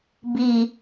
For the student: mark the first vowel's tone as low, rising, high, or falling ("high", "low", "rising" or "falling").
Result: low